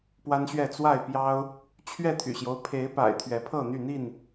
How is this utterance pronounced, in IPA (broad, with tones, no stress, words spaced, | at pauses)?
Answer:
pwa˦nɕɥɛ˥˨ t͡swa˥˨ɪ̯pjɑ˦ʊ̯ | t͡ɕʰɥɛ˥˨t̪ʰy̰˨˩ɕjo˦ʊ̯ pʰe˨˦ɪ̯pa̰˨˩ɪ̯ t̪ʰɥɛ˨˦pʰɤ˥˨n̪y˥˨n̪i˥˨n